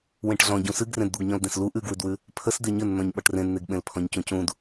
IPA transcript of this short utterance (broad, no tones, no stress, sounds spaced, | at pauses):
w ẽ ʈ ɮ ɔ̃ ɟ ũ s ɨ ɡ r ẽ d d̪ u ɡ ɲ ɔ̃ l d ẽ s l u ʔ ʉ ɡ w ɨ d w ʉ | pʰ ə s d e ɲ ə nː ɔ̃ ɲ ɓ ɔ ʈ r ẽ nː e ɡ ɓ ẽ l pʰ ɔ̃ ɲ c ũ c ũ d